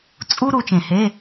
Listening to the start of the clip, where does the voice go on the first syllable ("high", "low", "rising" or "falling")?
high